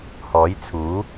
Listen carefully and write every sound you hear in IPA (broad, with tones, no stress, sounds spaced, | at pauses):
h ɔː˨˥ j t͡sʰ uː˨˥